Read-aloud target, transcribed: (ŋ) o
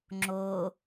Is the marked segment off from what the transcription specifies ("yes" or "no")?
yes